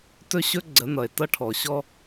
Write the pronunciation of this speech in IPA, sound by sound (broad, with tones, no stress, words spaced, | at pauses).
tɵ˦ɕɵ˦ ɡ͡ǀə˨˦nʌ˨e̯tʌ˦ ʈʰɔ˨ɕɔ˦